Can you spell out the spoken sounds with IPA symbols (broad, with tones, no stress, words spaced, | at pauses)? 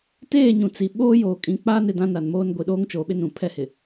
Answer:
teː˦˨ɲũ˨t͡si˨ ɓoː˦joː˨kʼĩ˨˦k͡paː˦n ɪ˨dã˦ na˨nmoː˦n ɡʷi˨ɗoː˦ŋ t͡ʃoː˨ɓɪ˦nũ˨ pʰɛ˦hɪ˨